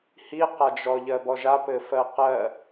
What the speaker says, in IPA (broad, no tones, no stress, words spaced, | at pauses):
hiqad͡ʒɔ ʎɜbɔʒapɘ fɜqɜ